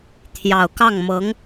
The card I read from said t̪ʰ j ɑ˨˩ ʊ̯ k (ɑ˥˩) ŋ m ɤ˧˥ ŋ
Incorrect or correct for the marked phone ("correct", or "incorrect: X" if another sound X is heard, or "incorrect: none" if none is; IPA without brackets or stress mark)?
correct